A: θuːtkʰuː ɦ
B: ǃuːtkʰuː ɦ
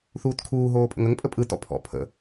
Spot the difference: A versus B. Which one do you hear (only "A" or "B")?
A